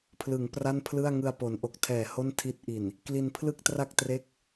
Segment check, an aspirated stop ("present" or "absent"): present